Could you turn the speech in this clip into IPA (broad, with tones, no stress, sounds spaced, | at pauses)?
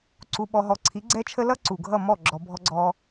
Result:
ǀ u˧ ɓ ɔ˧ ɦ ɔ˧ ǀʰ i˨˦ ɡ͡ǀ ɛ˦ t͡ʃʰ ə˦ l ʌ˦ ǀ u˨ ɡʱ ʌ˦˨ m ɔ˦˨ ɡ͡ǁ ɔ˧ bʱ ɔ˦ ɡ͡ǀ ɔː˦